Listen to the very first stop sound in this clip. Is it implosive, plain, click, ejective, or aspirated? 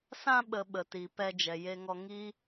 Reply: implosive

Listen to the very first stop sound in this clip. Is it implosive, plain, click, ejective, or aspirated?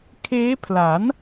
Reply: aspirated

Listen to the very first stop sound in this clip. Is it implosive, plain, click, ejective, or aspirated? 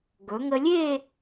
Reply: plain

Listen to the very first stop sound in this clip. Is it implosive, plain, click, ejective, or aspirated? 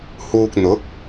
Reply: plain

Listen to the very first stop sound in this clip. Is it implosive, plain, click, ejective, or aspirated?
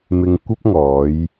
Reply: plain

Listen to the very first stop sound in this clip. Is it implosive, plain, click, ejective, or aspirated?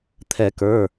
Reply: aspirated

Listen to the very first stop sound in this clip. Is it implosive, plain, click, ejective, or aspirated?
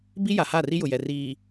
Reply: plain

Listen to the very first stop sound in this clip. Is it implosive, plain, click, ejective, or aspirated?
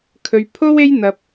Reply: aspirated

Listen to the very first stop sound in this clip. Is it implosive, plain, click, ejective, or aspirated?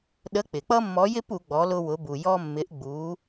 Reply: implosive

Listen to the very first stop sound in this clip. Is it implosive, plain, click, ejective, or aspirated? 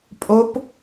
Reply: ejective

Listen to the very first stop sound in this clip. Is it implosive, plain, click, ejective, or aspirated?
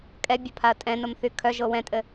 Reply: ejective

